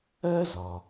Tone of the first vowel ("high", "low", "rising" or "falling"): high